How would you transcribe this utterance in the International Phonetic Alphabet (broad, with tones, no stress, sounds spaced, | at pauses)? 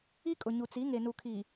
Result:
i˦ kʼ ʊ˨ ɲ u˨ t͡s i˨˦ ŋ e˨ n u˨ kʰ iː˨